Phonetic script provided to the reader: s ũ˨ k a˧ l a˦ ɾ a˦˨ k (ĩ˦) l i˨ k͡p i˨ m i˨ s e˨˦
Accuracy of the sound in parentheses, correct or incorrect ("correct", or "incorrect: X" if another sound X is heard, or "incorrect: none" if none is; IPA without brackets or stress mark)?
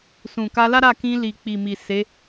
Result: incorrect: ĩ˧